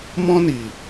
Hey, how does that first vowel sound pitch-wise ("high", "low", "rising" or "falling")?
high